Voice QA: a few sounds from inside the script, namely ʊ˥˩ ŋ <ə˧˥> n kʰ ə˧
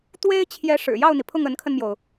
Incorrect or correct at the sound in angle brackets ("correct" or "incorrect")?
correct